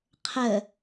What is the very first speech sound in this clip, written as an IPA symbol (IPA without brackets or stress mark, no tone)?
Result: qʰ